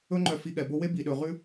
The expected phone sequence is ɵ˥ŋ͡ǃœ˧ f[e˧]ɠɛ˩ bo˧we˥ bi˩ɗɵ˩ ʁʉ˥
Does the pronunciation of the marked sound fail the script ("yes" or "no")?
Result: yes